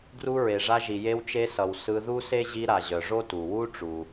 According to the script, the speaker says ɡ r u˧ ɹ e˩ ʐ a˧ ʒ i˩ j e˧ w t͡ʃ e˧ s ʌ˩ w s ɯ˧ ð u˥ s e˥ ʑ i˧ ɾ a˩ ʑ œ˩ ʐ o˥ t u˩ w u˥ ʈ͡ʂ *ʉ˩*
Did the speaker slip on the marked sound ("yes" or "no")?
yes